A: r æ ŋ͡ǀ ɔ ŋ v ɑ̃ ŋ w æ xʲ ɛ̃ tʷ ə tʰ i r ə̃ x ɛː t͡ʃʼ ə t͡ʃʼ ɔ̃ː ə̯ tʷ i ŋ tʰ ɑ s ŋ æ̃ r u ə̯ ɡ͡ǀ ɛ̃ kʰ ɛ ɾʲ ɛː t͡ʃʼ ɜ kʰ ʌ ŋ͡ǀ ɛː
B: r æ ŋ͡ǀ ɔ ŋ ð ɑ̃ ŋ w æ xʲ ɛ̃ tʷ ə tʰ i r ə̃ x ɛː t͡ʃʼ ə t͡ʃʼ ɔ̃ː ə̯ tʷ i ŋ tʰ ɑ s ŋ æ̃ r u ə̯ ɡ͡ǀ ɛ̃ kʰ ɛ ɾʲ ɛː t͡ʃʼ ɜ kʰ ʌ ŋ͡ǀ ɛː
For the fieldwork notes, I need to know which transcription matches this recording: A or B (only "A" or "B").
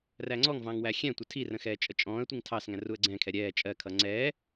A